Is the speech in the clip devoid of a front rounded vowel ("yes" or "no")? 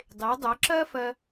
no